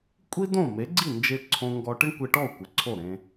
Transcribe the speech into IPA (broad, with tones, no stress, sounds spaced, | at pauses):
kʷʼ i˥ d õ˥˩ m e˩˥ ɡ͡ǀ i˥˩ n d͡ʒ e˧ ǀʰ õ˧ ŋ ɡ ɔ˧ ʈ ɪ˥ ɳ kʷ e˧ ʈ ɔ˥˩ u̯ kʷ ɪ˩ ǀʰ o˥˩ ɾ ẽ˧